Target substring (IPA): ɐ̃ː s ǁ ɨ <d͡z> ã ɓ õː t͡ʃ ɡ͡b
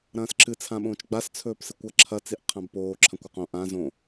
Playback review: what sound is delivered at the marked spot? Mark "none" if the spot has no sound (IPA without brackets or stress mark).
t͡sʰ